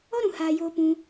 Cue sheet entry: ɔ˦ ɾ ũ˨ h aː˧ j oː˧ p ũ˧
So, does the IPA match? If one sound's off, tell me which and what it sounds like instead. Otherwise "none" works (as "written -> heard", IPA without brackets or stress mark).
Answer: none